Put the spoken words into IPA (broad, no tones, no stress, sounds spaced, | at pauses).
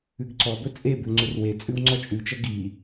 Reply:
ʉ ɡ ǀ ɔ b ɵ t͡sʼ e b ʉ ŋ͡ǀ ʏ r w e t͡sʼ ʉ w ŋ͡ǀ ɔ t͡ʃʼ ʉ t͡ʃ ʌ ɡ i